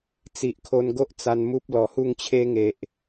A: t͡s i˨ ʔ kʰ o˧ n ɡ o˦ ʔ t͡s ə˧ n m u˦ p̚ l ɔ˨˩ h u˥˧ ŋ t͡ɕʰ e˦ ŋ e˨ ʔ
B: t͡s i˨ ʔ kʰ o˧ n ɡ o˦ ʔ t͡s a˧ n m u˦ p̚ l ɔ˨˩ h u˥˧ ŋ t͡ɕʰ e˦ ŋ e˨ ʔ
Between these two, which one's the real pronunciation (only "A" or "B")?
B